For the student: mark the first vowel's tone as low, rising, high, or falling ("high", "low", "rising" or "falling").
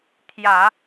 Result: low